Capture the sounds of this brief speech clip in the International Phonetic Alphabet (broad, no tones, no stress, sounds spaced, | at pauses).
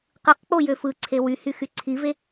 q ɯ q k͡p o j ø f ɯ ǀʰ e w y h y x y ǀʰ i v e